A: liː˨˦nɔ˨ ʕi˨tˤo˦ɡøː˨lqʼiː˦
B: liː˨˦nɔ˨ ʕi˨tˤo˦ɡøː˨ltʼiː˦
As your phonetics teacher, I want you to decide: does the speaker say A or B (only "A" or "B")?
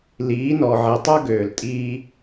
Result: B